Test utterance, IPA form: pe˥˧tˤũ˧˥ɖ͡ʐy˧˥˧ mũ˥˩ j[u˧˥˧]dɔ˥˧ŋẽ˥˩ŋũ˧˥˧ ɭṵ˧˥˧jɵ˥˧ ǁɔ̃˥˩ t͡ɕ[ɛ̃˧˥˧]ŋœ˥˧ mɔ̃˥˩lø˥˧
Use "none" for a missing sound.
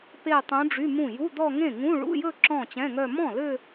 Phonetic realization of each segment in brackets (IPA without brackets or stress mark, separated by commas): u˧˥˧, ɛ̃˧˥˧